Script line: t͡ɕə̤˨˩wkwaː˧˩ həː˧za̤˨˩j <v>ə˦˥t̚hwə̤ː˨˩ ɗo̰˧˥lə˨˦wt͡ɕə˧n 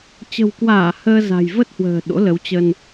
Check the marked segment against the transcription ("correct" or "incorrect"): correct